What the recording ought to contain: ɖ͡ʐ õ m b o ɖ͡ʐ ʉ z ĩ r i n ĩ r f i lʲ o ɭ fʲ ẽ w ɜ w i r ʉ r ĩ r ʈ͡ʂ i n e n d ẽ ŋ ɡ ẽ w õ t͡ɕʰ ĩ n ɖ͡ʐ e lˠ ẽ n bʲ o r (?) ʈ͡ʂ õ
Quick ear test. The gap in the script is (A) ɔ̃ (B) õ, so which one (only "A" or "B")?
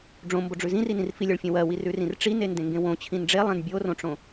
B